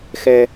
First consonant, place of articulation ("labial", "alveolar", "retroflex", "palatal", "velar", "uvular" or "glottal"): velar